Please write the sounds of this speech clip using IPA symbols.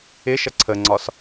ɪ ʃ ʌ ǀʰ ə ŋ͡ǀ ɒ s

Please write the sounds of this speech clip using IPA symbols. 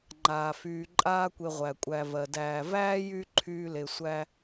ŋ͡ǃ aː˩ f yː˨ ǃʼ aː˦ kʷ e˨ ʁʷ æ˩ kʷʼ æ˨ v ɜ˩ d æː˨ v æː˥ j y˦ ǃʰ yː˦ l e˨ sʷ æ˦

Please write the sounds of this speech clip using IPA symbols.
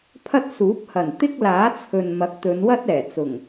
pʰ ɐ˥ t̚ s uː˨˥ p̚ h ɐ˨˩ n t̪ ɪ˥ k̚ l aː˨˥ t͡sʰ ɵ˨ n m ɐ˨˥ k̚ t̪ ɵ˨˧ n w ɐ˥ t̚ ɛː˨˩ t͡s ʊ˨˩ ŋ

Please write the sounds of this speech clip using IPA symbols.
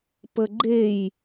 p ə ɡ͡ǃ e j

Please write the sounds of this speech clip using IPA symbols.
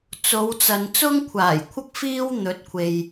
t͡s o˨˧ w t͡s ɐ˨ n t͡s ʊ˥ ŋ kʷʰ aː˨˩ j kʷʰ ɐ˥ k̚ f iː˥ w n̪ ɵ˨˥ t̚ kʷʰ e˨ j

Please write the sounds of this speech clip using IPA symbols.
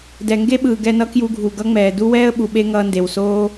d ɛ˨ ŋ ɡ e˦ ɓ ɯː˨ ɡ ɛ˧ n ʌ˦ k j u˧ ɡʱ u˨ ɡ ʌ˦ ŋ͡m ɛː˨ d u˦ w ɛː˦ ə̯ ɓ u˨ ɓ e˦ ŋ ʌː˧ n d e˨ w s oː˦

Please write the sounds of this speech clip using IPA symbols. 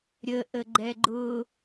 ɾʲ ə ʔ ə ɡ͡ǃ ɛ ɡ͡ǃ ʊ

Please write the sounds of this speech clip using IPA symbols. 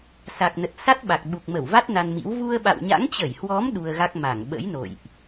s a˨˩ k̚ n ə˨˩ t̚ s a˦˥ t̚ ɓ a˨˩ k̚ ɓ u˨˩ k̚ m ə˧˩ w v a˦˥ t̚ n a˧ n m ḭ˧˥ w v u˧ ə̯ ɓ a̰˧˨ w ɲ a̰˧˥ ŋ t͡ɕ ə˧˩ j h w ɔ˨˦ m ɗ u˧ ə̯ ɣ a˦˥ k̚ m a˧˩ ŋ ɓ ə̰˧˥ j n o̰˧˨ j ʔ

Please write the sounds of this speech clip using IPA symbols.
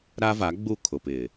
ɾ a˦ v a˨˦ ɡ͡b u˦˨ kʰ ʊ˨ p ɪ˨

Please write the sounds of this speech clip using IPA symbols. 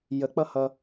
j ə k͡p ʌ h ʌ

